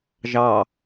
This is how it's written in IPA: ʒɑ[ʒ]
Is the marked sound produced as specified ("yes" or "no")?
no